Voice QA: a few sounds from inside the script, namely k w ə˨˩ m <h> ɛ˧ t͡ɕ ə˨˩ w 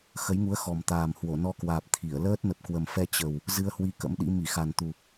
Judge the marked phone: incorrect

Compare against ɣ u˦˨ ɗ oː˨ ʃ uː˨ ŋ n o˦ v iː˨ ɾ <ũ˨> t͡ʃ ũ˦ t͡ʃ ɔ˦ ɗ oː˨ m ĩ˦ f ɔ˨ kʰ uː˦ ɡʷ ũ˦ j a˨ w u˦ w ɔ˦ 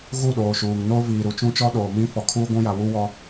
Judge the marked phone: incorrect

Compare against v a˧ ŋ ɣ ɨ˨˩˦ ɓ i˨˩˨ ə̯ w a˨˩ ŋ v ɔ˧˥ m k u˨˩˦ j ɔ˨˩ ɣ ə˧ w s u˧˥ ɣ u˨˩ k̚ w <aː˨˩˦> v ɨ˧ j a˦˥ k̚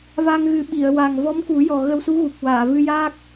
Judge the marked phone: incorrect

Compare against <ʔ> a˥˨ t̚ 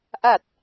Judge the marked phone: correct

